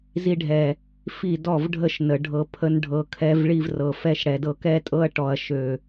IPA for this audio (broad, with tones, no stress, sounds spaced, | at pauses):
z i˧ ɖʱ ɛ˨ | f i˦˨ d ɔ˦˨ v ɖʱ ə˦˨ ʃ n ə˨ ɖʱ ɤ˧ pʰ ə˦ n ɖʱ ɤ˨ kʰ ɛ˧ v ɭ i˧ v r ɤ˨ f ɛ˧ ʃ ɽ ɛ˨ d ɤ˧ k ɛ˦ tʼ ɤ˦ ɐ̯ ʈ ɔ˨ ɐ̯ ʃ ø˨